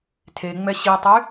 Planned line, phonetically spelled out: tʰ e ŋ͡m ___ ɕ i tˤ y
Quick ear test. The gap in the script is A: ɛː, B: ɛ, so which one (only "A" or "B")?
B